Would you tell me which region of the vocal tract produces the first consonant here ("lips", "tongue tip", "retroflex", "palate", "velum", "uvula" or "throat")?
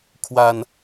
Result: velum